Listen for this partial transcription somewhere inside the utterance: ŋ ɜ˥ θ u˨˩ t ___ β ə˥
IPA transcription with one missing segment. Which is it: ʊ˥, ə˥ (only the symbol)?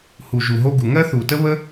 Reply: ə˥